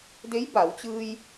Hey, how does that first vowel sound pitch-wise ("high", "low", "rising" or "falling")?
rising